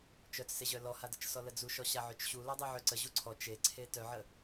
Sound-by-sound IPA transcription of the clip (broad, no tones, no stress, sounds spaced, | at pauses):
t͡ʃ œ t͡s s e ʑ œ l ɔ h a d ə t͡ʃ s ɔ l ə d͡z u ʃ ɔ ɕ a ʕ ø t͡ʃ ɕ u l ɔ dˤ e ʕ ø ǀ ə ʑ u ǀʰ ɔ t͡ʃ e ǀʰ e t œ ʕ ə